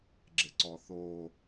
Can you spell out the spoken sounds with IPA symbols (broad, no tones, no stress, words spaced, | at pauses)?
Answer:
ɡ͡ǁɪǀɔθo